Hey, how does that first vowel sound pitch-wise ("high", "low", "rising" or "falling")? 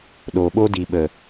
low